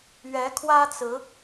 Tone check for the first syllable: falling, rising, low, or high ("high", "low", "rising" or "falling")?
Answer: rising